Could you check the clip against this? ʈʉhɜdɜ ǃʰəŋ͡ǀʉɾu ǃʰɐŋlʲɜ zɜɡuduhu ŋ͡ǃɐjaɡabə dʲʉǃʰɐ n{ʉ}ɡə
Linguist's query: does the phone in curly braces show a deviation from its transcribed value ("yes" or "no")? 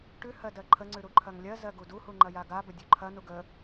yes